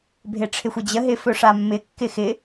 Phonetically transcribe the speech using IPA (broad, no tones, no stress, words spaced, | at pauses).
bʱeʈ͡ʂʰɪxʷəd͡ʑə ɦɪfɵʂamːɪ kːɪxɪ